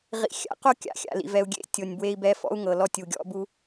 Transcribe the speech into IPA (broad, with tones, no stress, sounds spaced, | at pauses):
ʁ ḭ˨ xʲ a̰˨˦ q o˦ kʲ a̰˨˦ xʲ a̰˨ l ḭ˨ v ɛ˨ u̯ ɡʲ ḛ˦ tʲ o˨ nʲ b w e˧ i̯ b ɛ˧ f ɔ̰˦ u̯ ŋ ɤ˨ l ɔ˧ tʲ u˨ ɡʲ ɔ̰˧ b u˧